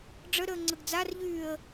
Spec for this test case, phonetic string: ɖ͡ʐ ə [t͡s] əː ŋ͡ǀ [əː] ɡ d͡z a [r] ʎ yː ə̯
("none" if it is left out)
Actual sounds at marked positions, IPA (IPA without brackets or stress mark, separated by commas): ɾ, ə, r